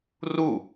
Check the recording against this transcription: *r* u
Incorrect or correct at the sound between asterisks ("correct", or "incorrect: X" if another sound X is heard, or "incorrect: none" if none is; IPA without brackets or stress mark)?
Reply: correct